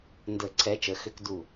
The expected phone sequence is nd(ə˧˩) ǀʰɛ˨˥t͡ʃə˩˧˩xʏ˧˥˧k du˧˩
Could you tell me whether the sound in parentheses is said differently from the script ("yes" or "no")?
yes